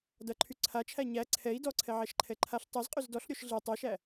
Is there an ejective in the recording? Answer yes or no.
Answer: yes